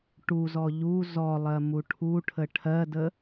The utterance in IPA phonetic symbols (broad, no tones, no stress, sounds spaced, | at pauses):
ʈ u z ɔ ʎ u z ɔ lˠ ɜ m u ʈʰ u ʈʰ ə ʈʰ ɜ d ə